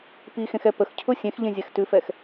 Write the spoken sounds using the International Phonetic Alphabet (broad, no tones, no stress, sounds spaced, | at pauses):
p i x ẽ x ɛ p ə x cʰ ʊ sʲ ẽ x ʎ ẽ zʲ ɛ x t ʉ f ɛ x